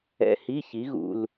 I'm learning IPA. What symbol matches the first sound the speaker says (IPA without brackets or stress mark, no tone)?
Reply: ɛ̰